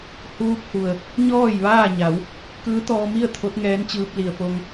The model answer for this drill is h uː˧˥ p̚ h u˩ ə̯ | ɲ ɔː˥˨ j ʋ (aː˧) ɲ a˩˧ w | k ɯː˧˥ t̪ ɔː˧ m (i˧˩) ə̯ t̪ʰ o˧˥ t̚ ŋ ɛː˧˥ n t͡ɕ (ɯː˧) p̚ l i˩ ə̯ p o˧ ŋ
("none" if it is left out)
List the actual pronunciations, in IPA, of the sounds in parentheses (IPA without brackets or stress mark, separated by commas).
aː˥˨, i˥˨, ɯː˧